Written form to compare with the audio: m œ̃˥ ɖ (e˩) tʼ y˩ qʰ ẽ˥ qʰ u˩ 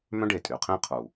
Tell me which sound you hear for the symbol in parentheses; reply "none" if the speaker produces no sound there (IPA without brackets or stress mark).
e˩